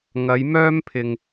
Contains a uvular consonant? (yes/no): no